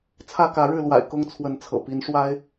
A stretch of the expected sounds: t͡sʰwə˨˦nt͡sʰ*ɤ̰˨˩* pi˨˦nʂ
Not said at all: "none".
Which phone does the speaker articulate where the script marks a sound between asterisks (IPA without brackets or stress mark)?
ɤ̰˨˩